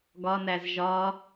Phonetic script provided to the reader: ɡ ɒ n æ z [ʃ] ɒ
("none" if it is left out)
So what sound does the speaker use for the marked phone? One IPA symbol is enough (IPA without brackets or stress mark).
ʒ